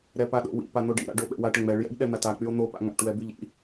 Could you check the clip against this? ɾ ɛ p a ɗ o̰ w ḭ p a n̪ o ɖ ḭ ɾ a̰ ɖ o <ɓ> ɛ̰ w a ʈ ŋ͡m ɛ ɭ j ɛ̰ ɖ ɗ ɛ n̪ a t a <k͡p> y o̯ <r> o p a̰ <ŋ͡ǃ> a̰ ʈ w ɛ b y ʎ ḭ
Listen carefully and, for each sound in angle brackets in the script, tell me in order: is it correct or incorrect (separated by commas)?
correct, correct, incorrect, incorrect